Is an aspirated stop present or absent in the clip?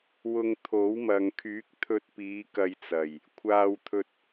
present